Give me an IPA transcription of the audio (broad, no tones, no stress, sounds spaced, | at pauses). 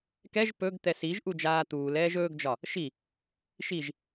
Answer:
k ɛ ʒ p ɵ ɡ t̪ ɛ s i ʒ ʔ u d͡ʒ aː t̪ uː l ɛː ʒ ɵː ɡ d͡ʒ ɒ | ʃ i | ʃ i ʒ